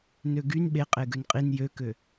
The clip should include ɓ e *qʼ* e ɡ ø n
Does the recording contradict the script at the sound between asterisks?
no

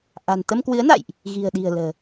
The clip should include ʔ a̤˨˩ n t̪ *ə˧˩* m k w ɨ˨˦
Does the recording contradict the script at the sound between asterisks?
yes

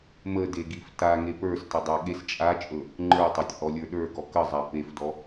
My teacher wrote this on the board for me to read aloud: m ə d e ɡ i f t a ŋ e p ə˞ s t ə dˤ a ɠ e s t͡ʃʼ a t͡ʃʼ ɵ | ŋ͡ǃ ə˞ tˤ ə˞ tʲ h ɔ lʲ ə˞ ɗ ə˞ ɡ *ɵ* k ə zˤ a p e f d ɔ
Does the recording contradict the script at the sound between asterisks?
yes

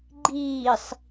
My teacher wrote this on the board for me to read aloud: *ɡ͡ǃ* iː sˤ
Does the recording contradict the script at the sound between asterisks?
no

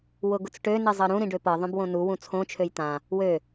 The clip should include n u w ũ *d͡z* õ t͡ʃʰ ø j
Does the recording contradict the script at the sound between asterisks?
yes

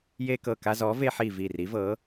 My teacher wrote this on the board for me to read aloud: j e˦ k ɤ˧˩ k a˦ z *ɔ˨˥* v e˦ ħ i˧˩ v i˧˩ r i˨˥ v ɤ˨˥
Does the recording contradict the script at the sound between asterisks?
no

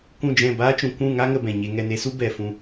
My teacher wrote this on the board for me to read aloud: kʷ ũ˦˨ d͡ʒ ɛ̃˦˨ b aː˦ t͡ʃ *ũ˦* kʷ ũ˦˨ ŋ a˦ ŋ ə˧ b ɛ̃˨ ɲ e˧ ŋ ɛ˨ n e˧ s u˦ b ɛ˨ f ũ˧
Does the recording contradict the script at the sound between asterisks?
yes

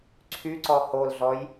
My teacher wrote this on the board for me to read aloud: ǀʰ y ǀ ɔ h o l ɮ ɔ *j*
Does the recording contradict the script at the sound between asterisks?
no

